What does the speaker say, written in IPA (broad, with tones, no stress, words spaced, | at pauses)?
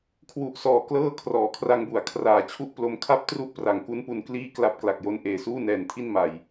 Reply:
kʰwu˨˩ʔsɔː˨˩ klɤː˥˩ kʰrɔː˩˦kʰra˧ŋbu˩˦a̯ kʰraː˨˩t͡ɕʰu˥˩ʔ plo˧mkʰa˥˩p̚tru˥˩ʔ pra˨˩ŋku˦˥npu˧n kliː˥˩kla˥˩p̚ kla˨˩k̚jo˦˥n ʔeː˨˩suː˥˩nɛː˨˩ntʰi˥˩n ma˨˩j